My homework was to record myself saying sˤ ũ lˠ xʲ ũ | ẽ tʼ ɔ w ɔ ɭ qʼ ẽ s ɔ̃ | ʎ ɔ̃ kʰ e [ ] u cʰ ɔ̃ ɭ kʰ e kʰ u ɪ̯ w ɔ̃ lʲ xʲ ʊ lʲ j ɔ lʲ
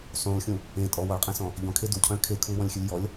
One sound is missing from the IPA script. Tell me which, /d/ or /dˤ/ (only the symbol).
d